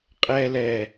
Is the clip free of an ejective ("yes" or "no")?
no